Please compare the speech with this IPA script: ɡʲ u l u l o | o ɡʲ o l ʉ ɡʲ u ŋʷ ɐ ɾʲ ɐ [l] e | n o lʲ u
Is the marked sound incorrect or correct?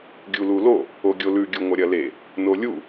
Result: correct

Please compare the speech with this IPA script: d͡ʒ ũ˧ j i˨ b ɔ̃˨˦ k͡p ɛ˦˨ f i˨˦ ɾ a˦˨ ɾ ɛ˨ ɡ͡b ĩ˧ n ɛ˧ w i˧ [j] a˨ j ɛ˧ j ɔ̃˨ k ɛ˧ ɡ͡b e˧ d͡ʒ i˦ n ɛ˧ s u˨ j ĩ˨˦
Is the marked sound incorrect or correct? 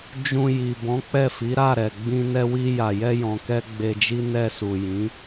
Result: correct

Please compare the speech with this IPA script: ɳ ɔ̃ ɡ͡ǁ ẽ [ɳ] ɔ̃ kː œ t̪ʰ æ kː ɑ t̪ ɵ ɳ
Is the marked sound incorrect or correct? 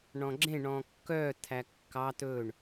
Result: correct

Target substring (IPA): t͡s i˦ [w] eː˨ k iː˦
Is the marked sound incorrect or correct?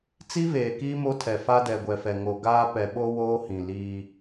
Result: incorrect: v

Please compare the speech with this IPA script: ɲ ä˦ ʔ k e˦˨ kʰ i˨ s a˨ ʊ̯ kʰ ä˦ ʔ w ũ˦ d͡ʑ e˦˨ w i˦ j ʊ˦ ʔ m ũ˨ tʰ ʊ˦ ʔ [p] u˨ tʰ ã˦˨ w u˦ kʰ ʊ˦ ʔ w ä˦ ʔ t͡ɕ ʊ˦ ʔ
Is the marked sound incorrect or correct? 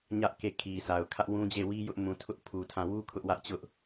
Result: incorrect: pʰ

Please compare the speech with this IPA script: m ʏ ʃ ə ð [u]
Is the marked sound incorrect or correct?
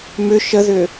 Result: incorrect: ʏ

